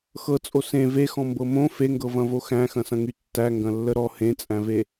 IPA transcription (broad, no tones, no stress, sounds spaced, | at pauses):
x ɤ t͡sʼ o s ẽ v e x ɔ̃ m b ɤ m õ f e ŋ ɡ ɤ v ɐ̃ v o x æ̃ x ɐ̃ s ɐ̃ ŋ y tː æ ŋ ɡ ɐ̃ lː ə ɾ ɔ h ẽ t͡sʼ æ̃ v e